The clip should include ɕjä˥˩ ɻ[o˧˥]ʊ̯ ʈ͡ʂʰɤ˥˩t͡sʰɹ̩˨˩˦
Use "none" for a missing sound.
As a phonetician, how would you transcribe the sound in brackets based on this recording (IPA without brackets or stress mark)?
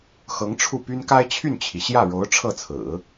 o˧˥